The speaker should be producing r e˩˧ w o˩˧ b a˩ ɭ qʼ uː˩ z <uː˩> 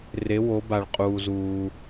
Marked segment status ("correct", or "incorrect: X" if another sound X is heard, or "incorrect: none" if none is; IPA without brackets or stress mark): correct